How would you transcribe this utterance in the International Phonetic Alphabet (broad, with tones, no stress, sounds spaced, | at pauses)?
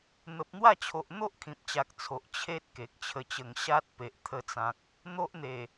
n̪ ə˨ p̚ n̪ w a˥˧ t͡ɕʰ o˨ ʔ n̪ o˦ ʔ kʰ ĩ˨ p̚ t͡ɕ a˨ k̚ t͡sʰ o˨ ʔ t͡ɕʰ e˦ t̚ k e˨ k̚ t͡ɕʰ ə˧ t͡ɕ ə˧ ŋ ɕ a˦ t̚ p e˨ ʔ t̪ʰ ə˧ t͡s ã˨ k̚ | n̪ o˦ ʔ n̪ e˨˩